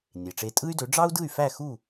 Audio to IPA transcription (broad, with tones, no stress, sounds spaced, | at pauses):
nʲ e˩ ʈ͡ʂ e˧ tʼ ɯ˥ y̯ d ø˩˥ ɖ͡ʐ ɑ˥ u̯ d ɯ˥˩ y̯ f æ˥˩ x u˥˩